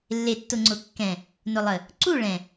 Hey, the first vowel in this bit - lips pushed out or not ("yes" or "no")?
no